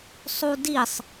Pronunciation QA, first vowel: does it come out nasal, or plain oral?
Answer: oral